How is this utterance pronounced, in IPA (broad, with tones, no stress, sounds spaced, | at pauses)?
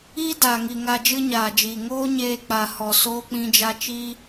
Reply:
iː˦ d aː˨ ŋ i˨ ŋ a˧ d͡ʒ ɨ˦ ɲ aː˨ d͡ʒ iː˨ ŋ oː˦ ɲ eː˧ k͡p a˨ h ɔ˨ s oː˧ k͡p ĩ˧ d͡ʒ a˧ t͡ʃ i˦